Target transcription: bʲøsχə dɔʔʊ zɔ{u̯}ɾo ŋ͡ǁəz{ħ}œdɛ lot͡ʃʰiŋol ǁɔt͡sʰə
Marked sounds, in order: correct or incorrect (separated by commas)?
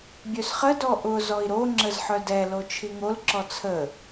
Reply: incorrect, correct